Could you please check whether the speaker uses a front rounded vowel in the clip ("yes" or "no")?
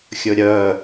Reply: yes